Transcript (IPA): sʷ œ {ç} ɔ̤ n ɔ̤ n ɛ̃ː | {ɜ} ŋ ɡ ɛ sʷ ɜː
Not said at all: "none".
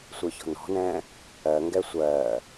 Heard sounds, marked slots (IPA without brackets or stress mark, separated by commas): ç, ɜ